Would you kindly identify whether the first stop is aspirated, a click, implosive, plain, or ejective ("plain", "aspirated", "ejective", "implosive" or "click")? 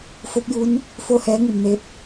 plain